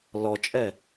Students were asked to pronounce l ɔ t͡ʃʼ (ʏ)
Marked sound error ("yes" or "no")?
yes